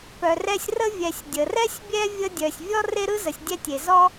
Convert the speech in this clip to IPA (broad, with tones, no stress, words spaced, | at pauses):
pœ˨rɛ˦sʲrə˥ vʲɛ˨sʲdʲə˩rɛ˥sʲ bʲɛ˥vʲə˦dʲœ˨sʲ vʲɔ˥ re˥ɾɯ˥ zə˨sʲdʲɛ˥tʲe˩ zɔ˥